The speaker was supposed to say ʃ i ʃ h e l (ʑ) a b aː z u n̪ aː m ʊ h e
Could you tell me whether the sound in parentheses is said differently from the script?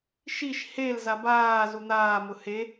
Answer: yes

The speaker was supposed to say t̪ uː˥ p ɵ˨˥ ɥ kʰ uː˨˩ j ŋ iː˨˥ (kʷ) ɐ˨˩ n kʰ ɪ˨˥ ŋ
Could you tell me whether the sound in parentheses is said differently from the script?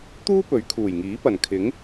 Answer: yes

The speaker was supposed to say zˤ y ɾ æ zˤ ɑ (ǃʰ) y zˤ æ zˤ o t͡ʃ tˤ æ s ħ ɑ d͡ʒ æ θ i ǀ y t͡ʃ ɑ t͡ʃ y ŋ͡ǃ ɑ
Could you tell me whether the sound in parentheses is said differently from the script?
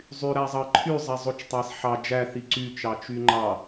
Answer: no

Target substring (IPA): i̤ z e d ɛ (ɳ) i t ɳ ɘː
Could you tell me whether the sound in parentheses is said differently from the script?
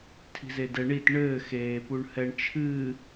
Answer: no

